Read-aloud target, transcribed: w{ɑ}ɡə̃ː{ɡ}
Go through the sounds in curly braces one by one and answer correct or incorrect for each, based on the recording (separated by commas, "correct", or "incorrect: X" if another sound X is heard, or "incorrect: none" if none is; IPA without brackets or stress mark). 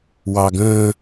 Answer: correct, incorrect: none